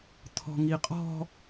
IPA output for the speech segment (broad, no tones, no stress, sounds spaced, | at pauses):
t̪ʰ ɔ̤ ŋ i qʼ ɔ̤